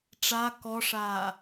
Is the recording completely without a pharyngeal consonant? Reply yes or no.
yes